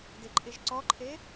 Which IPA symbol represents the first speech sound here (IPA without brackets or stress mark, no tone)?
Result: d